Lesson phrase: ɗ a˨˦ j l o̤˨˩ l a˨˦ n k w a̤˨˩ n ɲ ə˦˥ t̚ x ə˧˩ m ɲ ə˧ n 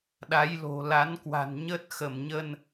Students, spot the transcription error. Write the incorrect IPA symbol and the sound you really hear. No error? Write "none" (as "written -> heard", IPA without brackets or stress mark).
none